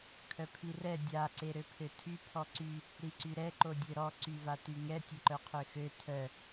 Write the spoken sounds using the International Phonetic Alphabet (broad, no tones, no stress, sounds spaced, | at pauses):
kʰ œ pʰ i r ɛ dʲ a ǀ e ɾ ø pʰ ø tʰ y pʰ ɔ ǀ y | ɾ i ǀ y ɾ ɛ ǃ o dʲ ø ɾ ɔ ǀ y v a t y ŋ ɛ tʲ ə ǃ œ qʰ ø x ø tʰ œ